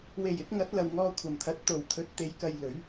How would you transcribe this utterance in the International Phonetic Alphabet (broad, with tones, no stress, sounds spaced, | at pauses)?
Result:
w e˨˩ j ɪ˨˥ k̚ ŋ ɐ˨˥ t̚ l ɐ˨ w ŋ ɔː˧ kʷʰ ɐ˨˩ m t̪ʰ ɐ˨˥ t̚ t̪ o˨˩ w t̪ʰ ɵ˨˥ t̚ t̪ e˨˧ j k ɐ˧ j l ɵ˨˥ ɥ